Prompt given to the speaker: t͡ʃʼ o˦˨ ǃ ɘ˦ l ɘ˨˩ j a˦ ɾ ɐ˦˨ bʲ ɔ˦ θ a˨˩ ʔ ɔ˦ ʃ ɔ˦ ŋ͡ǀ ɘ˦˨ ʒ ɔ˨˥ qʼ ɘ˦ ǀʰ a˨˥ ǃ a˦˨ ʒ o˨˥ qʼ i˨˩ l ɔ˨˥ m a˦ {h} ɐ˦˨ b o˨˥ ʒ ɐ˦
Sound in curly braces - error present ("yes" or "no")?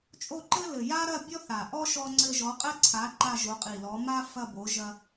yes